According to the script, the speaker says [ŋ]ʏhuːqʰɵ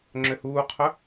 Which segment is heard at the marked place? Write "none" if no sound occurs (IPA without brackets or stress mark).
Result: ŋ͡ǁ